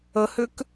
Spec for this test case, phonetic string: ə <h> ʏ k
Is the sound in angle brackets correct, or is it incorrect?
correct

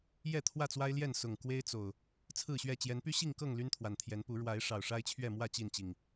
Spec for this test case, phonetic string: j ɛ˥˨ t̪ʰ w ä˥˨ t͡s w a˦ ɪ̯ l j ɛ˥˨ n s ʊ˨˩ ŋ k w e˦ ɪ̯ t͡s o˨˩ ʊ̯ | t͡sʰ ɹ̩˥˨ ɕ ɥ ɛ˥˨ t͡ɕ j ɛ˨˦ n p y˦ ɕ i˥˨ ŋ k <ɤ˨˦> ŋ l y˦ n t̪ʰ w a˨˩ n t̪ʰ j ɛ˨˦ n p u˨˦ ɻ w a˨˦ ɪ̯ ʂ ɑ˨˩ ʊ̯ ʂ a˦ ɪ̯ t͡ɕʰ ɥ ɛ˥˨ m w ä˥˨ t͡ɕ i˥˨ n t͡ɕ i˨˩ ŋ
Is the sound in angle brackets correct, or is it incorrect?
incorrect: ɤ˥˨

